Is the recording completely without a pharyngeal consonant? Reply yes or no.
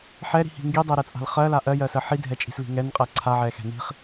no